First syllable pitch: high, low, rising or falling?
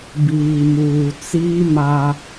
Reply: low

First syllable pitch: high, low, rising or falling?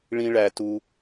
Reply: high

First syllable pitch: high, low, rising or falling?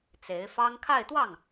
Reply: rising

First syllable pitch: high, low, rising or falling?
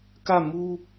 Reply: falling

